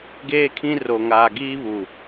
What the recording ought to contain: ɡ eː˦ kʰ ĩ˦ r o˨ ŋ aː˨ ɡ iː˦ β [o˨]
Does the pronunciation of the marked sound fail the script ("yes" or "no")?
yes